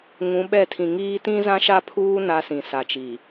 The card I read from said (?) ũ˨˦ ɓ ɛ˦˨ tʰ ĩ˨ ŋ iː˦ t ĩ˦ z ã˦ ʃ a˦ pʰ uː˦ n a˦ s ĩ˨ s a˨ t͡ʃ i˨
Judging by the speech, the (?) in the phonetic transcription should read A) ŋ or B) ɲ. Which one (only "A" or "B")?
A